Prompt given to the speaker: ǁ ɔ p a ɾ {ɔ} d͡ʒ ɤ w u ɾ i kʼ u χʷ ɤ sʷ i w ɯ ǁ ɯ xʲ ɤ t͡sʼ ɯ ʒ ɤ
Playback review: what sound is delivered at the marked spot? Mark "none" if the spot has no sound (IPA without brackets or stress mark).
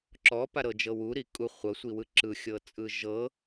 ɤ